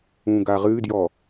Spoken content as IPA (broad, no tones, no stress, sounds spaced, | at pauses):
ũ ɡ a ʁ ɨ d j ɔ